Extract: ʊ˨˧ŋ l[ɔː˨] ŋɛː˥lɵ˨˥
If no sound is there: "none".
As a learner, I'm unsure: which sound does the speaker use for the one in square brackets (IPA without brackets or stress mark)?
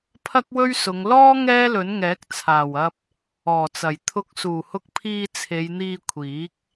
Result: ɔː˥